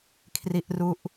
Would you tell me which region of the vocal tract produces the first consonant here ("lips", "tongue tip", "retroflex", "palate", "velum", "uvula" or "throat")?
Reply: velum